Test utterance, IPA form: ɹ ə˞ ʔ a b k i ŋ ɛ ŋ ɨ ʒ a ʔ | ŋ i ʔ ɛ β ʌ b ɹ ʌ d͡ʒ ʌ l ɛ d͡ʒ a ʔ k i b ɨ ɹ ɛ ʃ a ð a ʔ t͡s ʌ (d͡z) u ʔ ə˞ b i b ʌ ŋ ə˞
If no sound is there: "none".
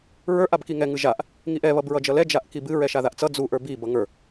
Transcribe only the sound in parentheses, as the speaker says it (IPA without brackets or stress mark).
d͡z